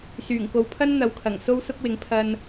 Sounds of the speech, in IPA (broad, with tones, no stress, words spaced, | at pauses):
syː˨˩ŋko˨˧wpʰɐ˥n n̪ɐ˨˧wkʰɐ˨˩ŋ so˥wsʊ˥k̚wɪ˨˥ŋ pʰɐ˧n